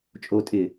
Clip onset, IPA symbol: t͡ʃʼ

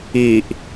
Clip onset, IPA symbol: i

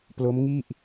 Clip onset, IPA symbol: p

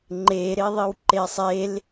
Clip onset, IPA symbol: ŋ͡ǃ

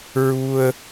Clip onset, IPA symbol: ɹ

